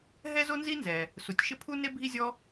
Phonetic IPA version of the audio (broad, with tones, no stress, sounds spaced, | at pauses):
ɦ ɛ˥ z o˥ n z i˥ n z ɛ˩ | s u˩ tʲ ʃ ɪ˥ pʰ u˥ n e˥ bʱ i˥ zʲ ɔ˥